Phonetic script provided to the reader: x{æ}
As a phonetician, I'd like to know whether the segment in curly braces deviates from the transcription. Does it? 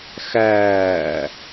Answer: yes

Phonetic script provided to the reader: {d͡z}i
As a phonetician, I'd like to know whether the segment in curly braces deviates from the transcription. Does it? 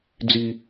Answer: no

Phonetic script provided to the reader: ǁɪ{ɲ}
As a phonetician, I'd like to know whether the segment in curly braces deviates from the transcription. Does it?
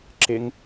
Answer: yes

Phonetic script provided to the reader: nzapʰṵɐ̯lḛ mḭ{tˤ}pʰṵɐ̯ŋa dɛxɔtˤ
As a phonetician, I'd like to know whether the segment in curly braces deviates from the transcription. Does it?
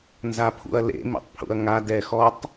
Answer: no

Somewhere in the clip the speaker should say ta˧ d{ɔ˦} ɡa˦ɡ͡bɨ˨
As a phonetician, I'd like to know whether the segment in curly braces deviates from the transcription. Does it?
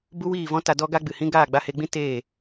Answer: no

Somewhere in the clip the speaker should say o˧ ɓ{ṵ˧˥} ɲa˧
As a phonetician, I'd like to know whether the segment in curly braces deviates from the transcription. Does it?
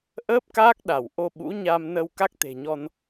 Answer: no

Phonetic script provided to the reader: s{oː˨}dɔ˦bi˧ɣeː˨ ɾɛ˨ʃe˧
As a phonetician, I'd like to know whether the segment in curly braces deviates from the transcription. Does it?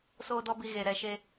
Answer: yes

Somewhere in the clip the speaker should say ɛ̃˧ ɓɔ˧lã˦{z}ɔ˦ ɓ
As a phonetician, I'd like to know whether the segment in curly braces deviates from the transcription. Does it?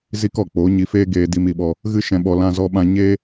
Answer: no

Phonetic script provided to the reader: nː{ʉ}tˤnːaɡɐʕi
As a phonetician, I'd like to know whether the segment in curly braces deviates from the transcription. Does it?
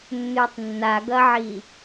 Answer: no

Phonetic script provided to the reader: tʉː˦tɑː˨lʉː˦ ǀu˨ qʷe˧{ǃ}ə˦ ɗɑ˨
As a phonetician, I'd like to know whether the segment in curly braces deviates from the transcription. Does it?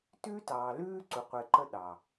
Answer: no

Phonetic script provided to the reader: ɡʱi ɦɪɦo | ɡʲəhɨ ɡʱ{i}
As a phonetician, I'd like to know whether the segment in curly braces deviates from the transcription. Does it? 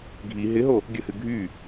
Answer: yes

